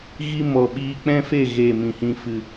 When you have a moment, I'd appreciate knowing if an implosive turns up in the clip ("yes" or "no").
yes